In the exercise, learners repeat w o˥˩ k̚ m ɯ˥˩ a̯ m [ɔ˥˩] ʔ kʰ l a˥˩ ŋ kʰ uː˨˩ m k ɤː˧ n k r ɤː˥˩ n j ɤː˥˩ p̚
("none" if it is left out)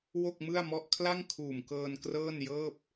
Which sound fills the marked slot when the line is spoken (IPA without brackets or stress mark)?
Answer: ɔ˥˩